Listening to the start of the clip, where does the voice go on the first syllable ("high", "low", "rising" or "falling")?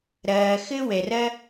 low